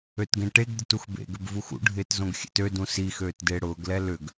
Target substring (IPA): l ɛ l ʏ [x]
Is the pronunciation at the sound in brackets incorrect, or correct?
incorrect